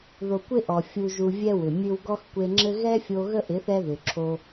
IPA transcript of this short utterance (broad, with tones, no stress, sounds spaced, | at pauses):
ð o˨ kʷ ɪ˦ ʔ ɔ˨ fʲ u˨ ʒ u˨ vʲ ɛ˦ w ʏ˨ mʲ ɨ˦ w ɡ ɔ˦ x kʷ e˧ ŋ͡ǁ ɘ˦ ɣ ɛ˦ fʲ o˧ ɣ ə˦ ʔ ɪ˨˦ θ ɛ˦ ð ʏ˨ ǁʰ o˧